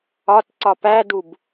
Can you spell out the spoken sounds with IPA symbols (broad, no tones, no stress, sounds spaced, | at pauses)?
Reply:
ɒ t ǀ ɒ p æ d u b